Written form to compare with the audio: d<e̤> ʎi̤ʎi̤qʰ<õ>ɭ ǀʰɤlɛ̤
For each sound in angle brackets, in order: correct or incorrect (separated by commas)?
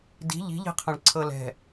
incorrect, correct